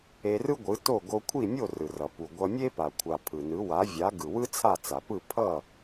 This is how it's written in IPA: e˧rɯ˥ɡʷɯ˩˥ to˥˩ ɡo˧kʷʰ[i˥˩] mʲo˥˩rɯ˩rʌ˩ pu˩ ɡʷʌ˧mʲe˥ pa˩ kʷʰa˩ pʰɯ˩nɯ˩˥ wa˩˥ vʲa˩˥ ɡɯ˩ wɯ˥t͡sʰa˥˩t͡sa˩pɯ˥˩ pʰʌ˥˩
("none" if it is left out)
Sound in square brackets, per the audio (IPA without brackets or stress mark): i˥˩